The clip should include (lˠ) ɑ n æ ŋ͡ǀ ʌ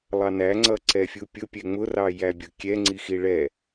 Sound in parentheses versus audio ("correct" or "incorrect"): correct